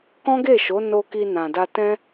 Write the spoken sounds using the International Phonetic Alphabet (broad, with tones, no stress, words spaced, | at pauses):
kɔ̃˦ɡe˦˨ʃo˨˦ no˧ ki˧nã˨da˧tɛ̃˦